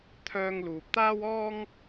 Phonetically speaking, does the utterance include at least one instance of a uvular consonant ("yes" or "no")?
no